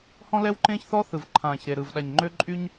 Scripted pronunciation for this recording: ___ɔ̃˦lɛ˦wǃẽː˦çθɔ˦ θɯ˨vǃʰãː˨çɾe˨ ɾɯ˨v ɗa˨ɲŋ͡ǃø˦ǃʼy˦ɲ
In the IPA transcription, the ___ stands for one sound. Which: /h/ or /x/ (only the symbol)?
h